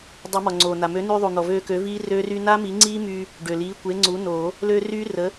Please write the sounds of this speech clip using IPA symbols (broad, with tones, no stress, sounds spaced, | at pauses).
dˤ e˨˩˦ m ɔ˩ ŋ͡ǀ oː˩ n a˩ m ø˩˥ n y˧ ðˤ u˩ n̪ ɔ˩ v øː˧ k ø˩˥ v iː˦˥ r ø˦˥ r y˦˥ n a˦˥ m i˩˥ ŋ͡ǀ iː˦˥ m yː˧ | ɖ ø˩ l iː˩˥ kʷ e˩˥ ŋ͡ǀ u˩˥ n oː˨˩˦ | l ø˧ r yː˦˥ r ə˩˥